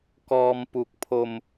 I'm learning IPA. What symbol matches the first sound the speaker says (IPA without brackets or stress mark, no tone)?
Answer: k